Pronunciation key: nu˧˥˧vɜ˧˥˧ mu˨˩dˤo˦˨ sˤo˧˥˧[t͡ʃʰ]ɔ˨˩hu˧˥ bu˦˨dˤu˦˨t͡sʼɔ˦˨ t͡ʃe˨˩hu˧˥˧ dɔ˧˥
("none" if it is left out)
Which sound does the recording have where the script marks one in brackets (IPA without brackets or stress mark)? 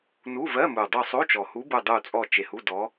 t͡ʃ